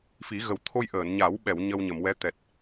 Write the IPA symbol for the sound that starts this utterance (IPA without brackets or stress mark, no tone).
f